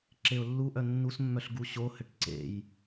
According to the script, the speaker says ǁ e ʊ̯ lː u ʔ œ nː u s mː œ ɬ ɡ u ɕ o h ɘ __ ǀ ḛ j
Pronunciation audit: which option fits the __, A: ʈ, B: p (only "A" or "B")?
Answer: A